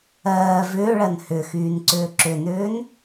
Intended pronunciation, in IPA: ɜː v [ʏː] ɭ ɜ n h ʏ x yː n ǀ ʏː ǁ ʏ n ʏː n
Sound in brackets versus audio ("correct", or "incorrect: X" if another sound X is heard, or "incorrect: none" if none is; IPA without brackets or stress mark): correct